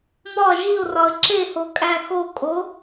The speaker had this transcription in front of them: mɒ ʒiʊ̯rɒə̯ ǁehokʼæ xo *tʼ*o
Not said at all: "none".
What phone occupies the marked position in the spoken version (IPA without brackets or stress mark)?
kʼ